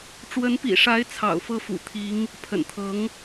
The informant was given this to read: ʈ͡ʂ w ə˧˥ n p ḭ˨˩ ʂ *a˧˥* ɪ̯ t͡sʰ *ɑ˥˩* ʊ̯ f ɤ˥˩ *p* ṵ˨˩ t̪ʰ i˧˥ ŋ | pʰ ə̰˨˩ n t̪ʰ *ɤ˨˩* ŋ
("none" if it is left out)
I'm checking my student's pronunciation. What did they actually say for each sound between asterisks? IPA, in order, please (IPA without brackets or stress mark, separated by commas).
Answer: a˧˥, ɑ̰˨˩, f, ɤ˧˥